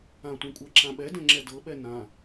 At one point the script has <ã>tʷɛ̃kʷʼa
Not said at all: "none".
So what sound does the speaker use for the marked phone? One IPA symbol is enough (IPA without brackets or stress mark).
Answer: ã